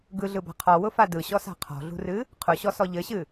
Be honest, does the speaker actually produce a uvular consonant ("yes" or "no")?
yes